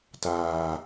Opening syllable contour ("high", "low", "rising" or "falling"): low